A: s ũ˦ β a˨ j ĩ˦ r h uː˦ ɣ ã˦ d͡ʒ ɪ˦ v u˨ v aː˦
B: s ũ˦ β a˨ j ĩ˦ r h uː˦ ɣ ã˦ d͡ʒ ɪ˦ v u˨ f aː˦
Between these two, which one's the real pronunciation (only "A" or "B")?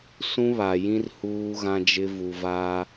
A